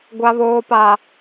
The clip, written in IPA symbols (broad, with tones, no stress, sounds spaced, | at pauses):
ɡʷ a˨ β oː˨ p a˨